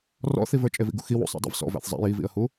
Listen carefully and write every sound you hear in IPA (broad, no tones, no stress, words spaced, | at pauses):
rɔ̰θivə˞ t͡ʃʼevḭɡṵxi wṵsˤæ̰ dˤḭvsɔ̰ væ̰θzˤæ̰j ivḭə̯hu